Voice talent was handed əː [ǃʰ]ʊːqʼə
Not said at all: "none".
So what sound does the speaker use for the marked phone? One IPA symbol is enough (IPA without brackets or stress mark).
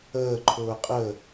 ǃʰ